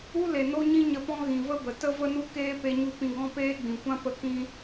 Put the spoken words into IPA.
u˦ l e˨ n o˦ ɲ ĩ˦ ɲ ə˧ p ɔ̃˦ ɣ ĩ˨ v ə˦ b ə˨ t ə˦ v ə˦ n u˦ k eː˦ p e˧ ɲ u˧ p ĩ˧ ɡ ɔ̃˦ p eː˦ ɡ͡b ĩ˨ kʷ ã˦ p ə˧ k ĩ˧

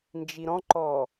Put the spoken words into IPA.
n d͡ʒ i ɾ ɔ̃ ǃ ɔ

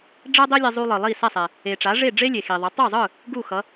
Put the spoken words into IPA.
ɖ͡ʐ ɛ˥ dˤ e˥ lʲ ɛ˧ zˤ u˧ lˠ ɯ˩ lˠ i˥˩ s ɛ˥˩ sˤ ɛ˩ | e˩ ʈ͡ʂ a˩˥ ʐ e˥˩ ɖ͡ʐ e˥ lʲ e˩ x i˩ ðˤ ʌ˩˥ tˤ o˥˩ zˤ ɯ˥˩ | ɡ u˥˩ x ʌ˩˥

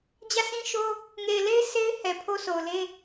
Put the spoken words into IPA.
d͡ʑ ä˦˨ sʰ ĩ˦ ʃ o˦ | ŋ e˨ ɪ̯ l e˦ ɪ̯ s e˦ ɪ̯ h ɛ˨ pʰ o˦ s o˨ ʊ̯ l e˦

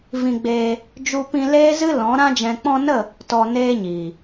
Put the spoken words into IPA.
v ĩ˧ ɡ͡b eː˧ | d͡ʒ u˧ p ĩ˧ l eː˦ z ɨ˦ l ɔ̃˨˦ ɾ ã˧ d͡ʒ ɛ̃˨ k͡p ɔ̃˧ n ə˦˨ | t ɔ˧ n eː˦ ɲ iː˨

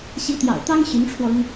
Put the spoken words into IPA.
ɕ i˧˥ t̪ j ɑ̰˨˩ ʊ̯ t̪ ɑ˥ ŋ ɕ y˧˥ n ʈ͡ʂʰ w ɔ˧ ʊ˥ ŋ

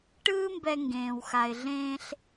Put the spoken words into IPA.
ʈ ɯː˥ m b ɛ˧ ŋ ɡ ẽː˩ w x a˩ ɪ̯ ɮ ẽː˧ ɬ

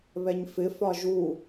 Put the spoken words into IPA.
β ɛ ɲ f ɪ f ɒ ʒ u

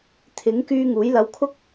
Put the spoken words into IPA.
t̪ʰ ɪ˨˥ ŋ k yː˧ ŋ uː˨˥ j l ɐ˧ w kʰ ʊ˥ k̚

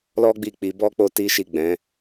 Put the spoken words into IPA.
l ɔ˦ ɡ͡b i˦˨ k͡p i˨˦ b ɔ˦ k͡p o˦ t i˦ ʃ i˦˨ ɡ͡b ɛ̃˨˦

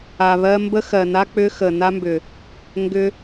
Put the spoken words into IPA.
a˨ β ɜ˧ m b ə˦ x ɜ˨ n a˦ k͡p ʏ˦ x ə˨ n a˦ m b ʏ˨ | ŋ ɡ ʏ˧

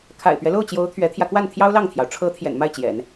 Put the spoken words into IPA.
kʰ a̰˨˩ ɪ̯ p ɥ ɛ˦ l o˥˩ ʊ̯ t͡ɕ j o˧˥ ʊ̯ t̪ʰ ɥ ɛ˧˥ t̪ʰ j ä˧ k w a˥˩ n t̪ʰ j ɑ˥ ʊ̯ l ɑ˥˩ ŋ t̪ʰ j ɑ˩ ʊ̯ ʈ͡ʂʰ ɤ˧˥ t̪ʰ j ɛ̰˨˩ n m a˥˩ ɪ̯ t͡ɕ j ɛ̰˨˩˦ n

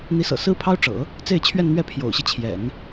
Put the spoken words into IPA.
n̪ i˧˥ s ɤ̰˨˩ s ɹ̩˥ pʰ ɑ˥ ʊ̯ ʈ͡ʂ ɤ̰˨˩˦ | t͡s e˥˧ ɪ̯ t͡ɕʰ ɥ ɛ˥˧ n n̪ ɥ ɛ˥˩ pʰ j o̰˨˩ ʊ̯ ɕ i˦ t͡ɕʰ j ɛ̰˨˩˦ n

